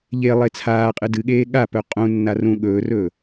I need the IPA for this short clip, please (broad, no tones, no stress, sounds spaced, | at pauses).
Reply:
ʎ e lˠ e t͡sʰ aː qʼ ɨ d ɨ ɠ eː ɠ a p ɵ qʼ ũ nː a r ũ ɠ ɵː r ɵː